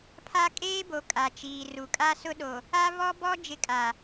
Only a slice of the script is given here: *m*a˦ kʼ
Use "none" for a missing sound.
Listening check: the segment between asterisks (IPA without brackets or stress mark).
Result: pʰ